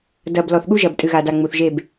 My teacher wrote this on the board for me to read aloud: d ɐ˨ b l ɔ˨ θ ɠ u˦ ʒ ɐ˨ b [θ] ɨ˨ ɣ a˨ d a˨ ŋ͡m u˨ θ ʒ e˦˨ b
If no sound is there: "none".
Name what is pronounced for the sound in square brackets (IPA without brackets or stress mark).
tʼ